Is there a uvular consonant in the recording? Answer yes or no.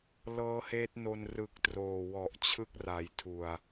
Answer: no